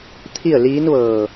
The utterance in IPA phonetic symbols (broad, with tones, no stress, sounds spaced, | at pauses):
t̪ʰ i˥˨ ə̯ l iː˧˥ n ʋ ɤː˧˩